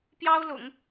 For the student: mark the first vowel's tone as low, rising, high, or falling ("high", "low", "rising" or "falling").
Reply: high